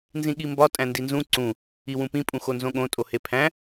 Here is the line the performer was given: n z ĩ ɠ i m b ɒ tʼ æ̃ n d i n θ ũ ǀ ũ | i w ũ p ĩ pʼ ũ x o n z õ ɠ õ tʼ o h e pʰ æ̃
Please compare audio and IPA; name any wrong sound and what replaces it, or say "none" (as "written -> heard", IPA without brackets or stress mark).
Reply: θ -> z